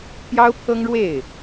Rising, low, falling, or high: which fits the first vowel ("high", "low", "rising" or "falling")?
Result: high